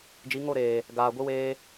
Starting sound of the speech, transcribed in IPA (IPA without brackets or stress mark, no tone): d͡ʒ